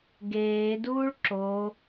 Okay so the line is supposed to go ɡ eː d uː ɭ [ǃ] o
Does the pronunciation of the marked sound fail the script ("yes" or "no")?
yes